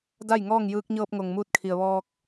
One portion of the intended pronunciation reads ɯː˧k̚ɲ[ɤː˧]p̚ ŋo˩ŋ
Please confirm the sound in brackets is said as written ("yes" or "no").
yes